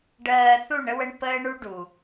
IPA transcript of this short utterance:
ɖ ɜː˨ θ u˦˨ ɳ ə˦ w ə˦ ɳ p əː˦ ɳ u˦ ɖ u˨

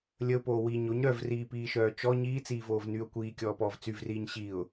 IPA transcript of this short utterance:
lʲ ə ʊ̯ p oː w i ɲ o ɲ ɾ œ v r iː p iː ʃ œː t͡ʃ ɔ ɲ iː t͡s iː v oː v n y ʊ̯ kʷ iː kʲ ɔː p ɔː v t͡s y v r iː ɲ ɕ i ʊ̯

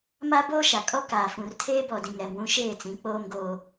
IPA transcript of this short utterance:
m a˦ b oː˦ ʃ a˨ kʼ ɔ˦ k aː˨ f ũ˨ r tʰ eː˦ b ɔ˨ d ĩ˨ ŋ ɾ ɛ˨ m w ũ˦ ʃ eː˦˨ t͡s ĩ˨˦ k͡p oː˦ m ɡ oː˦

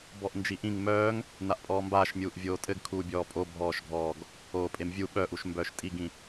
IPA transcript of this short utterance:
b ɔ ʔ n d͡ʒ i ʔ ĩ ŋ m œː ŋ | n a ʔ pʼ ɔː m b aː ʃ mʲ uː ʔ vʲ oː tʼ ɘ ɡ kʰ uː bʲ ɔː pʼ o bʱ ɔː ʃ ɡʱ ɔː ɡ | oː pʼ e m vʲ u ɓ œ ʔ u ʃ m b œː ʃ tʼ i ɡ ĩ

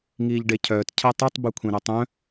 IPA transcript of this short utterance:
ŋ iː ʎ ɖ e cʰ œː t cʰ ɛ tˤ u tˤ b u kʷʰ ẽ ɾ o tˤ œ̃

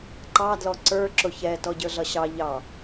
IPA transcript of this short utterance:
ǃ ɑ d l ɔ ǀ ə˞ ǁ ʊ ç ɛ t ɔ ɟ ə˞ ɮ ʌ ɕ ɑ ʎ ɑ

